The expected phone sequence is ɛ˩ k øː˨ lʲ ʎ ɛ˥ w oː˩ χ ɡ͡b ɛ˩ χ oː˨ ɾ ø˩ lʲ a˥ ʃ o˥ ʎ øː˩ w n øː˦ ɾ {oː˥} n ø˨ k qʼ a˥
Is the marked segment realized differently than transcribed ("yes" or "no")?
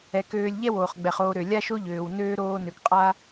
yes